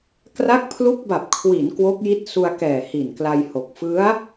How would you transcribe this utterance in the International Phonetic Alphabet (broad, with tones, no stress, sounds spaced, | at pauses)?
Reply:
k r a˦˥ k̚ pʰ l u˦˥ k̚ b a˨˩ p̚ kʰ w i˩˦ n k w o˦˥ k̚ j i˦˥ t̚ s u˧ a̯ k ɛː˨˩ h i˨˩ n k l a˧ j h o˨˩ k̚ f ɯ˦˥ a̯